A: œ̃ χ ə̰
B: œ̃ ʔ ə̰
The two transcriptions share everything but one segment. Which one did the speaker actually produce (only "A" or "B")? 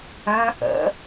B